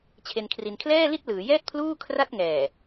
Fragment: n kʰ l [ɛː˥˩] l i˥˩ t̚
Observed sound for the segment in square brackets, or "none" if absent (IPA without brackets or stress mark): ɛː˥˩